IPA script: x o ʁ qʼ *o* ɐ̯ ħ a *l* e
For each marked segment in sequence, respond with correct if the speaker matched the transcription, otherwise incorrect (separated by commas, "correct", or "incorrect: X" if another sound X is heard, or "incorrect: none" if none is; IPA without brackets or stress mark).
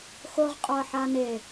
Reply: correct, incorrect: n